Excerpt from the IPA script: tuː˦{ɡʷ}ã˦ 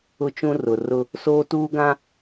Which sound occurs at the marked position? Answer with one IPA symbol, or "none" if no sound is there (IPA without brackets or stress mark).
ɡ